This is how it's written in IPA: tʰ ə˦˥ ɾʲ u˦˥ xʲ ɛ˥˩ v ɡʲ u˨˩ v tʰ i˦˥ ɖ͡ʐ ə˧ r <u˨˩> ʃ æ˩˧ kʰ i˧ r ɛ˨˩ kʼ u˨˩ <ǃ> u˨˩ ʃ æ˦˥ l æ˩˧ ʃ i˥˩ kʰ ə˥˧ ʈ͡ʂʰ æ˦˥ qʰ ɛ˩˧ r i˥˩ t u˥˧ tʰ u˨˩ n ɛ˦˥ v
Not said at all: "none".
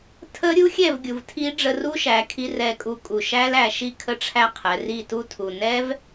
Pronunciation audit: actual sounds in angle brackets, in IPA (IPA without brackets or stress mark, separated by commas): u˦˥, kʼ